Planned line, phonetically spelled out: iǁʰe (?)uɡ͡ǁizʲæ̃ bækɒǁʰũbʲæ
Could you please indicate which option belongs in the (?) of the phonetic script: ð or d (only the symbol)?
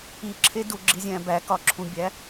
d